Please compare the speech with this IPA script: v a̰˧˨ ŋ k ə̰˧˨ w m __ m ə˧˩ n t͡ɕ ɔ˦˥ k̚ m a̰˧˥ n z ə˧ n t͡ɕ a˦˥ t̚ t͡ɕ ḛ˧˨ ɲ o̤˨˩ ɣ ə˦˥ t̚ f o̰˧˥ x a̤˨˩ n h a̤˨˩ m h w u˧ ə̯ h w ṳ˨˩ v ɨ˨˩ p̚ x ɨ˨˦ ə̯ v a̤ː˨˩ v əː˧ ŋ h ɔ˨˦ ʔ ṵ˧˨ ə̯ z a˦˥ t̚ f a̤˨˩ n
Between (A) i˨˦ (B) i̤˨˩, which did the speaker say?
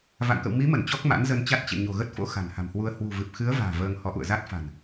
A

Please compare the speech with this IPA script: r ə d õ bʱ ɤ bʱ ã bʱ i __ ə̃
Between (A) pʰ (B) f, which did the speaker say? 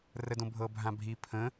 A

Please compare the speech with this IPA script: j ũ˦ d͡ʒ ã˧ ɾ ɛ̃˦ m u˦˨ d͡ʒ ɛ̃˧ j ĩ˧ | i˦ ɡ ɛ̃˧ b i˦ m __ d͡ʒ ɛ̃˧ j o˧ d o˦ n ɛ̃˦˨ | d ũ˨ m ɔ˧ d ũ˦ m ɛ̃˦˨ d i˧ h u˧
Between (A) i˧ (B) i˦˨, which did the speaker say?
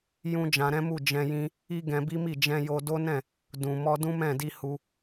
B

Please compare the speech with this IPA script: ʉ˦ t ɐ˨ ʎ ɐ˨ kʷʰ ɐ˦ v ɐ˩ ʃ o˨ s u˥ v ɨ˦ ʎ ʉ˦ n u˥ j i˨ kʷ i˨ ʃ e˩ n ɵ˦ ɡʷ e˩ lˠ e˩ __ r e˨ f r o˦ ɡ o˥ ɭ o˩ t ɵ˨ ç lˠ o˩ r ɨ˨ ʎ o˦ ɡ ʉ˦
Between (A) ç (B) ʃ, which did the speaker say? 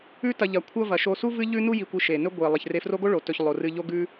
A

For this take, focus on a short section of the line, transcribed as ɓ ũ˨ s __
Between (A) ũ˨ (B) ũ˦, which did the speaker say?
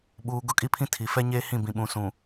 A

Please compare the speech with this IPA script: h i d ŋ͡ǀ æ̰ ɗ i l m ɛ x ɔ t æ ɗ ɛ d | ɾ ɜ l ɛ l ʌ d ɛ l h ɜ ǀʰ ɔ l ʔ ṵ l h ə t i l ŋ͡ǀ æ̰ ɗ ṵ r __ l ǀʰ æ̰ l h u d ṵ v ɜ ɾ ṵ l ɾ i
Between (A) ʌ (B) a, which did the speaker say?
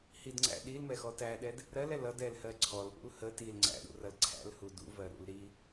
A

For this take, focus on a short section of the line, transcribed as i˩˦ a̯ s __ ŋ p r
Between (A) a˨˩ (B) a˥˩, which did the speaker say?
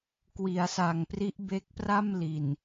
A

